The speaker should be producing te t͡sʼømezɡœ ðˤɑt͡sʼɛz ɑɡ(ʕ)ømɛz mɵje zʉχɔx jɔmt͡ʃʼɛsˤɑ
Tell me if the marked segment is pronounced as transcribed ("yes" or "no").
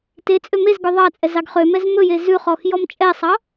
no